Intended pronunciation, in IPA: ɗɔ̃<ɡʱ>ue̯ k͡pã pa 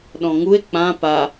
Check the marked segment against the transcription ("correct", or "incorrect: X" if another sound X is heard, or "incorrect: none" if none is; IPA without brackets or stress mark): incorrect: ŋ